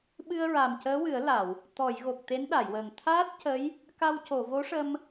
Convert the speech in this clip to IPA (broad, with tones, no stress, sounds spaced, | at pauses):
ɓ ɨ˧ ə̯ ɹ a˨˩ m c əː˧˥ w ɨ˨˩˦ ə̯ l a˨˩˨ w | t̪ ɔ˨˩˨ j ɣ o˨˩ k̚ t̪ e˧˥ n ɗ a˨˩˨ j w əː˨˩ ŋ t̪ʰ aː˦˥ t̚ c ə˧˥ j | k a˧ w c o˨˩˨ v o˧˥ ʂ ə˧ m